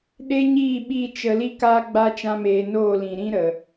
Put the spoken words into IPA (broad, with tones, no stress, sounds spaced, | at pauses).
ɗ e˦ ɲ iː˦˨ ɓ i˦˨ t͡ʃ ə˧ l i˦ k aː˦ ɡ͡b a˦ t͡ʃ ã˦ m eː˧ n oː˦˨ l ĩ˨ ɾ ĩ˦ ɾ ə˨